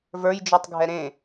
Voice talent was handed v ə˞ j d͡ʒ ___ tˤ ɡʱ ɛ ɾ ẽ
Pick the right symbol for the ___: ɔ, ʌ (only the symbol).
ɔ